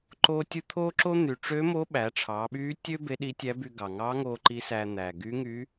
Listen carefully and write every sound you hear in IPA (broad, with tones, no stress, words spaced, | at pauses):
ǃoː˥tʲɯ˥ t̪ʰoː˥ǁo˥n̪y˩˧ ʈ͡ʂø˧˥mo˧˥ ɓæ˩˧ʈ͡ʂʰɑː˩˧ɓyː˧˥tʲø˥ be˧˥ɗi˧˥tʲæ˧˥by˧ ɡɑ˩ŋɑː˧˥ŋoː˧ ǃi˧˥sæː˧ n̪æː˩ɡy˧˥ŋy˧˥